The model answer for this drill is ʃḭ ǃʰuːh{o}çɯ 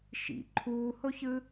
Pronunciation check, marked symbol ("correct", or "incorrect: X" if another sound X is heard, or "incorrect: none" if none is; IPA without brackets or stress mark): correct